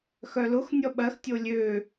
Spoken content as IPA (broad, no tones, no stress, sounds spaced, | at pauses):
x œ l ʊ x nʲ ɔ ɓ ɜ x tʲ o lʲ ø